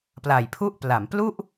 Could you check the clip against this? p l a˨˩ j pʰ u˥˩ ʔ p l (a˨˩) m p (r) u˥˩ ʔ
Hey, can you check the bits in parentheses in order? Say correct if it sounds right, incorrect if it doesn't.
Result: incorrect: a˩˦, incorrect: l

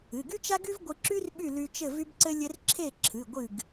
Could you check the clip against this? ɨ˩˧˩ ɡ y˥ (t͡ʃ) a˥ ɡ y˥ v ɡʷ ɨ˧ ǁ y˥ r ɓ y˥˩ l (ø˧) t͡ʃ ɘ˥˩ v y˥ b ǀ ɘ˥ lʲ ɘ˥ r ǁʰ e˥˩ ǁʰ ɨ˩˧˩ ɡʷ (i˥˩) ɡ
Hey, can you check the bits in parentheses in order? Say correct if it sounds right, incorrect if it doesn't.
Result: correct, incorrect: y˧, incorrect: ɨ˥˩

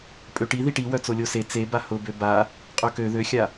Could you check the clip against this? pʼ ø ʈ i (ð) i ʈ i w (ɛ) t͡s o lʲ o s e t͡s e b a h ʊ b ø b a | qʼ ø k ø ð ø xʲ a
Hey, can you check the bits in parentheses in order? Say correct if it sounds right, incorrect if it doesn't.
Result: correct, incorrect: œ

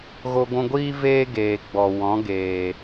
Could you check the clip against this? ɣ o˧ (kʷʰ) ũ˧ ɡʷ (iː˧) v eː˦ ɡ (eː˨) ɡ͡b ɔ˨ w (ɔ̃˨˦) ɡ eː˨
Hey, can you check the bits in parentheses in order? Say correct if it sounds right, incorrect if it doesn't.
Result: incorrect: ɡʷ, incorrect: iː˦, correct, correct

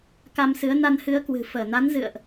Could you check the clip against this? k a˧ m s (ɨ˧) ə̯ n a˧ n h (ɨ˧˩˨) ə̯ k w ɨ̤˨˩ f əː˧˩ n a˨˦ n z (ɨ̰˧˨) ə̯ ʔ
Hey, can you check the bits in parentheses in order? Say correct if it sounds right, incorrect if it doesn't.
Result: incorrect: ɨ˨˦, incorrect: ɨ˨˦, correct

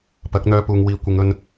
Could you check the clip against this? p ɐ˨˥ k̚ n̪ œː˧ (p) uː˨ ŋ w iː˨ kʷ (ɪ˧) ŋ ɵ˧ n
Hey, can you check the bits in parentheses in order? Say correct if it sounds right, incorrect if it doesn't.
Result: correct, incorrect: ɪ˨˧

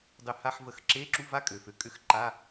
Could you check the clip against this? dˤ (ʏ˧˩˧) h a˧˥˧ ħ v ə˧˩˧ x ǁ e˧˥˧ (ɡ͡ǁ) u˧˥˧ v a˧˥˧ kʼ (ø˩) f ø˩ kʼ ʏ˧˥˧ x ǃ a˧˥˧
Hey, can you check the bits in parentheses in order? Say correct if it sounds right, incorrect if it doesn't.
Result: correct, incorrect: ǁ, correct

